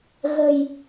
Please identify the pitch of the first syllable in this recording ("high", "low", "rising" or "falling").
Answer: low